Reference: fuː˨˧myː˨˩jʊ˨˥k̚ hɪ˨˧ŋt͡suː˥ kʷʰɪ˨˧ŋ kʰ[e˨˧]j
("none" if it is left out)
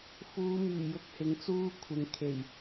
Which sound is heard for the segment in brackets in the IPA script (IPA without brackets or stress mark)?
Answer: e˨˩